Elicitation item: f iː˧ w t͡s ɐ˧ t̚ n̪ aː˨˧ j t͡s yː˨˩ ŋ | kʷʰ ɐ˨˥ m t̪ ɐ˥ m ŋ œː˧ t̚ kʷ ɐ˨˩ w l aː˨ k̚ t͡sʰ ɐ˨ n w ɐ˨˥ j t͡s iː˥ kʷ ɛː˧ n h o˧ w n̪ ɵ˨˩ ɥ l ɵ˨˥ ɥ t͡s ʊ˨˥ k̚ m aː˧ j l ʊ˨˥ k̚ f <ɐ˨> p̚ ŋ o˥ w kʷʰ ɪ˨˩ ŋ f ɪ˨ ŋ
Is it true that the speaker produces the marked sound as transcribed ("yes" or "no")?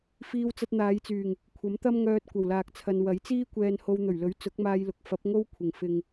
no